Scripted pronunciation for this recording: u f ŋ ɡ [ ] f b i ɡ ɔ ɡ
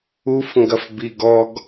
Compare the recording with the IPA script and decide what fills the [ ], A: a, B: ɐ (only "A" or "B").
B